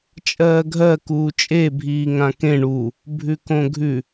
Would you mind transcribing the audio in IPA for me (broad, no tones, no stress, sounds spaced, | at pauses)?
t͡ʃʼ ɜː ɡʱ ɜ k uː t͡ʃʼ e bʱ iː ŋ ã k ẽ ɳ u | bʱ ʉ k õ ɡʱ ʉ